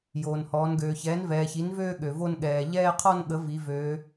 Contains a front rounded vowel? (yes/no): yes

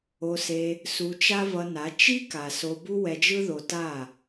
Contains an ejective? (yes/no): no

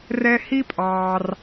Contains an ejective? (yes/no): yes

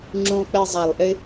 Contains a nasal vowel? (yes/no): yes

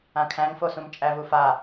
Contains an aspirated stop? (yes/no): yes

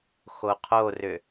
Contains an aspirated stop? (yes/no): yes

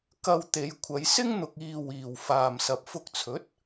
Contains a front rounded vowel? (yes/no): no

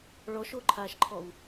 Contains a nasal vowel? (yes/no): no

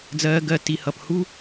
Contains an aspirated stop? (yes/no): no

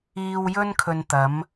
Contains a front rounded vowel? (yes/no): no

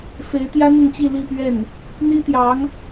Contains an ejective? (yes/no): no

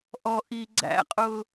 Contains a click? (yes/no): yes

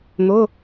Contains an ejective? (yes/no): no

